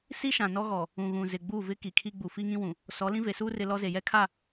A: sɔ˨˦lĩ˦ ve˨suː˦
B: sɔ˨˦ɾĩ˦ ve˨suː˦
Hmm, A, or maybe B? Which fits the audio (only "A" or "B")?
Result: A